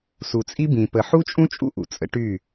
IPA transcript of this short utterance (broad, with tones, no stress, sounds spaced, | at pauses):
s u˨ t͡sʼ i˦ b ĩ˨ p ə˨ ħ u˦ t͡ʃʼ ũ˦ t͡ʃʼ ṵ˦ ʔ ṵ˨ t͡sʼ ə̰˦ ʈ y˦˨